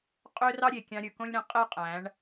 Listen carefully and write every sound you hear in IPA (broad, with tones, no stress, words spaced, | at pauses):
qʼø˦rɑ˦ɾʲe˨ kʲɑ̃˧ɾʲɯ˨kõ˦lʲɾẽ˧ qʼe˦qʼæ̃˨˦ɳ